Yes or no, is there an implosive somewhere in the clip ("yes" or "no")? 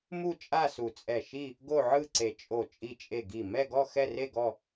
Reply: no